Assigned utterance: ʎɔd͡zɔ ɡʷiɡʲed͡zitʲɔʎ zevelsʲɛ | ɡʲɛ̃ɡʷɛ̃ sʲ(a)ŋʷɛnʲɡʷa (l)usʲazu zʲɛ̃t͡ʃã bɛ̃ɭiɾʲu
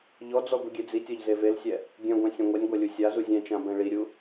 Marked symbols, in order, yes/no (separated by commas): no, no